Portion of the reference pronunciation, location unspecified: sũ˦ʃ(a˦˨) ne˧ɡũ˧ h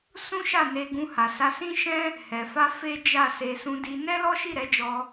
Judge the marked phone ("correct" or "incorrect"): correct